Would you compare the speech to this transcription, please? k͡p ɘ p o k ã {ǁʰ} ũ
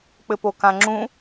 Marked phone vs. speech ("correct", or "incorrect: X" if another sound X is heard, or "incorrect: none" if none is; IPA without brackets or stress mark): incorrect: ŋ͡ǁ